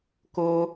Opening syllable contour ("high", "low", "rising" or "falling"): high